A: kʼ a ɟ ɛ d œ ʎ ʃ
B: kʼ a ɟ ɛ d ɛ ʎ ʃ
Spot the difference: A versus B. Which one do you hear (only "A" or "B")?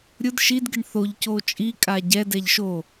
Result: B